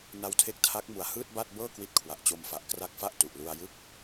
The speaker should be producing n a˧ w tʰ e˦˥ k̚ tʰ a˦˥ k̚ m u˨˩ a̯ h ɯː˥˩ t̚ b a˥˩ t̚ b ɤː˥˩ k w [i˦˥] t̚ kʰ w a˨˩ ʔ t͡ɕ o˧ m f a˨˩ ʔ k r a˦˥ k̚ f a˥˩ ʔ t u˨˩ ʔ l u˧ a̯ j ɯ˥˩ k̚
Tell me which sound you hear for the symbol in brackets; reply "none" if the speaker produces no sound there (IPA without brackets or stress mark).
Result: i˦˥